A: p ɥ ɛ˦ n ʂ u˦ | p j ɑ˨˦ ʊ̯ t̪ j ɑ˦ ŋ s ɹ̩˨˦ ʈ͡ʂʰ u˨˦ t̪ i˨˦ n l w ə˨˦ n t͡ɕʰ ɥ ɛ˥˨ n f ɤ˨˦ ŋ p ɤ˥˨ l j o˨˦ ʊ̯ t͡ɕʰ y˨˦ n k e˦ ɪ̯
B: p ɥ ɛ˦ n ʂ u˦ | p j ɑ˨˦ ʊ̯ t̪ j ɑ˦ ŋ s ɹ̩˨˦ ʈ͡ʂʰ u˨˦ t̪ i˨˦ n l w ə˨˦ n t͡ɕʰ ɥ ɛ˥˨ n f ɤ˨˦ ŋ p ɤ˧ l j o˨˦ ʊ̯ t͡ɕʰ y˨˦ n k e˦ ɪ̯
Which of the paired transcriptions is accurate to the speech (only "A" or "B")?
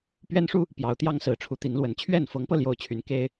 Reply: B